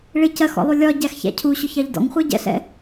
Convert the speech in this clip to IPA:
ɭ ɪ c ɜ x ɔ̰ lˠ u lʲ ɒ ɟ æ x ç æ̰ cʰ u ɕ ʊ ç ɑ ʎ d ɔ̰ ŋ χʷ ɜ ɟ ɛ̰ ɬ ɛ̰

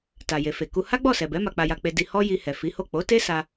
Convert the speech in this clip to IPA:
t a˨ j e˨ f e˨ k u˧ h a˦ ɡ͡b ɔ˦˨ s ɛ˨ b ɛ˨˦ m a˧ k͡p a˧ j a˧ k͡p e˧ d i˧ h ɔ˦ j i˧ h ɛ˨ f i˨˦ h o˦˨ k͡p o˨˦ t e˦ s a˧

